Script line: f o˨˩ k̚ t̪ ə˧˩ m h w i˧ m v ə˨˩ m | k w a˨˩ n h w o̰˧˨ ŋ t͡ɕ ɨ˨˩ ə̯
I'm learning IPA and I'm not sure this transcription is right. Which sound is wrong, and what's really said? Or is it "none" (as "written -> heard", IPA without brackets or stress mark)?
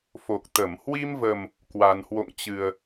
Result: none